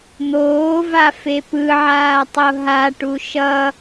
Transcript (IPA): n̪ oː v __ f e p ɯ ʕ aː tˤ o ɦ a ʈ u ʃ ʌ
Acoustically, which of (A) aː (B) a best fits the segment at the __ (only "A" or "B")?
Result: B